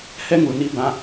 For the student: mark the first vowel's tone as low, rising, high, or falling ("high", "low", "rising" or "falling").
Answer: high